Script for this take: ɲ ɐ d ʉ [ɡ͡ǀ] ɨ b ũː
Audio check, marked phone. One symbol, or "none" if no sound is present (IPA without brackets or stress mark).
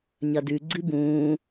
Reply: ɡ͡ǀ